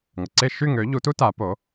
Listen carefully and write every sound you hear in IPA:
ŋ ə˩ ǀ e˥˩ ʃ y˥˩ ŋ ø˩˥ ʎ u˩˥ t u˥ t a˩˥ p o˩˥

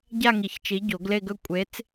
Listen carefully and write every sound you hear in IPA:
ɟ a˥˧ ŋ i˨˩˦ ç t͡ʃ i˨˥ ɟ o˨˩˦ ɡ l e˥˧ ɡ ɵ˥˧ kʷʼ e˨˥ t͡s

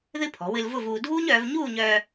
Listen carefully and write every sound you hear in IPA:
ð ɨ˥ pʰ ɔ̤˩˧ w ɨ˧ l v ʊ˥˧ v uː˧ dʱ uː˥ ɲ œː˩˧ v ɲ uː˥˧ ɲ œː˧

